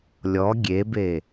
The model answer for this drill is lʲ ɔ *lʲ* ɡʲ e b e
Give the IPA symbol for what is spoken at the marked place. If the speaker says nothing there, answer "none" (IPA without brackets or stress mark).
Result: none